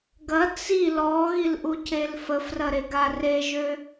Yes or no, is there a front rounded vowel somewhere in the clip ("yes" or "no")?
yes